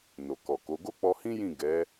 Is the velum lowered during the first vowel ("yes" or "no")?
no